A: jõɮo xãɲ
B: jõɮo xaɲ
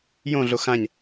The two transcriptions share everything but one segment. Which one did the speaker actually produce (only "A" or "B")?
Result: A